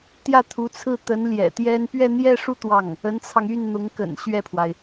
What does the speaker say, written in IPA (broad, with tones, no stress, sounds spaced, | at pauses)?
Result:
t̪ j ä˥˩ t̪ʰ u˧˥ t͡sʰ ɹ̩˥˩ t̪ ə˧˥ n l j ɛ̰˨˩ t̪ j ɛ˥ n p ɥ ɛ˥˧ n̪ j ɛ˥˧ ʂ u˥˧ t̪ w ɑ˥˩ ŋ | ə˧˥ n t͡sʰ ɑ˧ ŋ y˥˩ n n̪ ʊ˧˥ ŋ k ə̰˨˩ n ɕ ɥ ɛ˥˩ pʰ w a˩ ɪ̯